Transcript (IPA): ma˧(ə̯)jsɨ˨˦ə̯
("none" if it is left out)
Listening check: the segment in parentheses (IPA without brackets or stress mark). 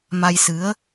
none